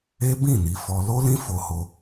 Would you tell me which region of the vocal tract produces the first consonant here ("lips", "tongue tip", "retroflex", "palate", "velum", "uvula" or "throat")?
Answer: lips